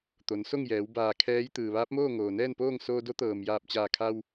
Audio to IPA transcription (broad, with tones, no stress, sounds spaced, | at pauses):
t̪ o˩˧ n s o˥˨ ŋ j ɛː˩˧ w b aː˧˩ kʰ ɛː˧˥ j t̪ ɯː˩ ʋ aː˧˥ p̚ m oː˥˨ ŋ oː˩ n ɛː˥˨ n p oː˥˨ ŋ s oː˧ d o˧˥ t̪ ɤː˩ m j aː˧˩ p̚ t͡ɕ aː˧˩ kʰ a˧ w